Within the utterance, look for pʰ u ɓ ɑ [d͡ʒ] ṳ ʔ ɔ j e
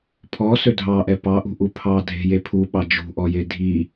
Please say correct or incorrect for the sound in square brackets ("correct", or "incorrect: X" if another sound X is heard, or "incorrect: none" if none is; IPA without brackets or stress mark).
correct